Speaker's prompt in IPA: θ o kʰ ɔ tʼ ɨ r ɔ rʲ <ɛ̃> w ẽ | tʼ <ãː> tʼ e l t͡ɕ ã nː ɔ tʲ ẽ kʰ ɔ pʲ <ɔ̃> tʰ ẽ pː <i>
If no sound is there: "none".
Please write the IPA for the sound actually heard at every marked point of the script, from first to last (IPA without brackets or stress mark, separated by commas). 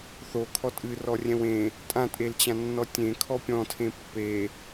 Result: ɛ̃, ã, ɔ̃, e